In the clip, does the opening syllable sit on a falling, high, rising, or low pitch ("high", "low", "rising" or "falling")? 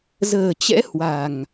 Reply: low